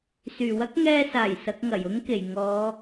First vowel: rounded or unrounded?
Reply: rounded